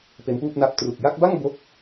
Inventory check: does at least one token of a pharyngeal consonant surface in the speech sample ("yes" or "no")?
no